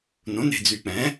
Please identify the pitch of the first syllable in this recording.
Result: rising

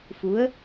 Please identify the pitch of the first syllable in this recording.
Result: rising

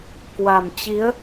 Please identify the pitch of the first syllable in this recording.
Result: low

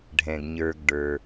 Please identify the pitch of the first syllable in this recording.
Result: low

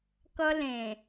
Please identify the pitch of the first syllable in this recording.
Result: high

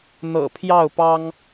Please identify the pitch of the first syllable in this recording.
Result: low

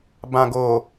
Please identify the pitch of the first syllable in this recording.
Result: low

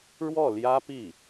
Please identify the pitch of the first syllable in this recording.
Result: falling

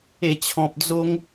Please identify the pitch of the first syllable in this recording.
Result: low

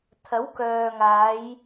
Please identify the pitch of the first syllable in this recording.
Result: rising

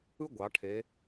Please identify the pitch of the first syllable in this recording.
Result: high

